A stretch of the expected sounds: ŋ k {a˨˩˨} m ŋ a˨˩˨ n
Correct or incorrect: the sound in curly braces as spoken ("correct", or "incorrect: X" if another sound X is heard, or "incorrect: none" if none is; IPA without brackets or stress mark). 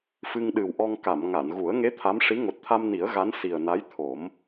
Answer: correct